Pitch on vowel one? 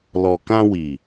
low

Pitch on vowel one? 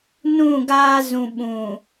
falling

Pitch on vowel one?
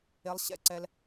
rising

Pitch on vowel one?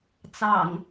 low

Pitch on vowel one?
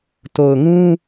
low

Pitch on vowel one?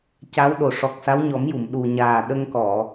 rising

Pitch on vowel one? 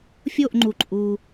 falling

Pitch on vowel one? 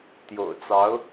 low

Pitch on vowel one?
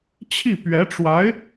falling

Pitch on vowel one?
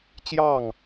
falling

